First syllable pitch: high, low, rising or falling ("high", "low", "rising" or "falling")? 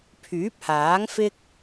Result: rising